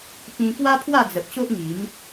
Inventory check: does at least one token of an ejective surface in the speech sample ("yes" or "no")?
no